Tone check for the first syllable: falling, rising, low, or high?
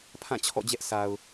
falling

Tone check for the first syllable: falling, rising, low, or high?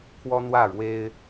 high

